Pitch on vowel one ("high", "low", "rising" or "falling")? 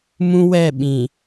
high